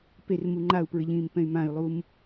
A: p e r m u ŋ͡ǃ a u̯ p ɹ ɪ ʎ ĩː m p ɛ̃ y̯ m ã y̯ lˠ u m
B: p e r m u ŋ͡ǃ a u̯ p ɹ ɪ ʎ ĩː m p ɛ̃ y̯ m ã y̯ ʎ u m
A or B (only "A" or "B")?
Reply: A